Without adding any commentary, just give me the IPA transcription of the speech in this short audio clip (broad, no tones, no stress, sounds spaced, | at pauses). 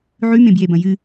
ʕ ʉ m ẽ b j e b ɐ̃ j ɨ